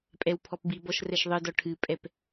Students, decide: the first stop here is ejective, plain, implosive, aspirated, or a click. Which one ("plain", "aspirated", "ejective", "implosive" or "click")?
ejective